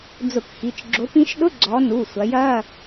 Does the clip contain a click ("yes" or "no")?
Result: yes